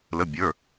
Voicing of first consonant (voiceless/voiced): voiced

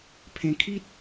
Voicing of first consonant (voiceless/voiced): voiceless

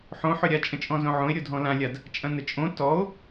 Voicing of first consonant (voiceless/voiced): voiceless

